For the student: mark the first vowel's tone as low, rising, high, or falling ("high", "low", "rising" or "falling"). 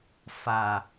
low